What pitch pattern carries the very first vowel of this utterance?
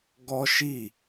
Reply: high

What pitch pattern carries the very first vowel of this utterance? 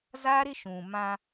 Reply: high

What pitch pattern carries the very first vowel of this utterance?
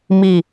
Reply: falling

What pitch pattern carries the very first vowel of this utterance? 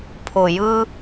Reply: low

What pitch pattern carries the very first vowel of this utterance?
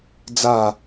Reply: falling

